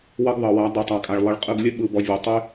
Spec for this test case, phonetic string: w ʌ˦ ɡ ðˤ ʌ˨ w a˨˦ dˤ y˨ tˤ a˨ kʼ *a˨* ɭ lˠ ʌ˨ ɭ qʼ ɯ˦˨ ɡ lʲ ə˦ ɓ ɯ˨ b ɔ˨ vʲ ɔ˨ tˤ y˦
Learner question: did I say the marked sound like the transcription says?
yes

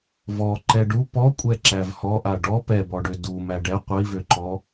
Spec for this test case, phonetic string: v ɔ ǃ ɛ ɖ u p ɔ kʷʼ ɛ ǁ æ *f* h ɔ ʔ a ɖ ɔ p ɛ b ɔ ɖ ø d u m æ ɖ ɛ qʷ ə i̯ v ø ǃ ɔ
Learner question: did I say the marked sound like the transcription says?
no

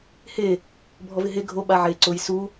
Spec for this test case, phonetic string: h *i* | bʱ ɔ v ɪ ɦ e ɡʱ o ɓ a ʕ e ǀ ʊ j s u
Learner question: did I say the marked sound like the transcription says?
no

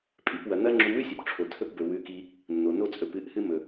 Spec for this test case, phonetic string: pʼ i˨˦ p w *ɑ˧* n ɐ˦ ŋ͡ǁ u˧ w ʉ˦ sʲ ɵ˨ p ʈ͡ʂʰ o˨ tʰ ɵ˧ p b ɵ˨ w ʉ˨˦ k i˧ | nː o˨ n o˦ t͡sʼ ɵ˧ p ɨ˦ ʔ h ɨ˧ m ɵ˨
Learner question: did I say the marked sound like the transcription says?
no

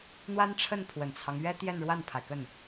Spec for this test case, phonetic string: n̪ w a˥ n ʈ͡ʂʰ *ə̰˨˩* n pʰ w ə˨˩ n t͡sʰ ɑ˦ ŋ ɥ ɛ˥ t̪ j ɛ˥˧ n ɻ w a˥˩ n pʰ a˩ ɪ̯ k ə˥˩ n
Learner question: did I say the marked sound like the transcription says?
no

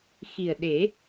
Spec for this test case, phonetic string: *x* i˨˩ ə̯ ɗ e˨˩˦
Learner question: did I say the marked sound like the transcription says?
yes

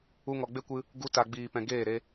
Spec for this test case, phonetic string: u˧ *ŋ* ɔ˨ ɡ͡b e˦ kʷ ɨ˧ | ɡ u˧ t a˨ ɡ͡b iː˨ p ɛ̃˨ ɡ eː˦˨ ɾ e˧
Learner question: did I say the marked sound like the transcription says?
yes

